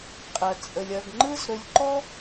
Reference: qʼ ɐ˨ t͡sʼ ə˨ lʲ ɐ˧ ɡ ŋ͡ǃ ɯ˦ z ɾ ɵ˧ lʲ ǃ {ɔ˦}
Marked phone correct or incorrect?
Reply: correct